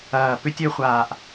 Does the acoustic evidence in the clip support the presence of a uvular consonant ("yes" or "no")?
yes